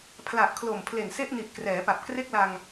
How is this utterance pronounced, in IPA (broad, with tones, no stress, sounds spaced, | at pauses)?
pʰ l a˨˩ ʔ kʰ l o˨˩ m pʰ l e˨˩ n s e˥˩ ʔ n i˨˩ ʔ k r ɛː˩˦ p a˨˩ p̚ k r e˥˩ k̚ l a˧ ŋ